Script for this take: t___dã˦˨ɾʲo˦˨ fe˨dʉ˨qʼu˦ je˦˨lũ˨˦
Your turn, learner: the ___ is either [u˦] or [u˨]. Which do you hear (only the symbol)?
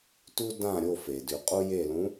u˦